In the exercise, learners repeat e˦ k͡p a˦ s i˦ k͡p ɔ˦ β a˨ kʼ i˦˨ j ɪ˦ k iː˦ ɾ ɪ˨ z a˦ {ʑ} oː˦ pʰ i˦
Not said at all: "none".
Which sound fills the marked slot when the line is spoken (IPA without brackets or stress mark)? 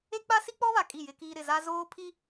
z